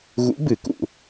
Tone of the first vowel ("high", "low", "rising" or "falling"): rising